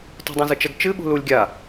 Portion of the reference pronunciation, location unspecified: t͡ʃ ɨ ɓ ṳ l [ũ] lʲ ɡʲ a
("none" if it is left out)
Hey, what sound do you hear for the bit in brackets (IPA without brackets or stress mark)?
u